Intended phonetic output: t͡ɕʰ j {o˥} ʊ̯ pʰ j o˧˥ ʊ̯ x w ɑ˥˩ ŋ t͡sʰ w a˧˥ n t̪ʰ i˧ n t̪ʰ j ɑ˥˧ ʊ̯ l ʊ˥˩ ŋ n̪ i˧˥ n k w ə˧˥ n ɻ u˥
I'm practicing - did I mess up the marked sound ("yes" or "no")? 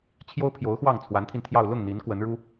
no